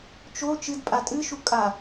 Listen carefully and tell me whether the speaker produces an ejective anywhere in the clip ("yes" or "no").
yes